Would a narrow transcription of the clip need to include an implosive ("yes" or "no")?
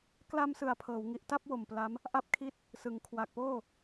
no